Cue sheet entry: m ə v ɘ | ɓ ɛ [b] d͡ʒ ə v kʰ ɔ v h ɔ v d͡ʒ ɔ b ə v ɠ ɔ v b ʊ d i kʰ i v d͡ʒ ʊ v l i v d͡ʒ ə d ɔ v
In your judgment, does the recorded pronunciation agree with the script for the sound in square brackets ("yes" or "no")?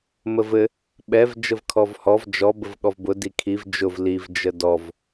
no